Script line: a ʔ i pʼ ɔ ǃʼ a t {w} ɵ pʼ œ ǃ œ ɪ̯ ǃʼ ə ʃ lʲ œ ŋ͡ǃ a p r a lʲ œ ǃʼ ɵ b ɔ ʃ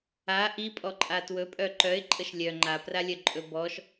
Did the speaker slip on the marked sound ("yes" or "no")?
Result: no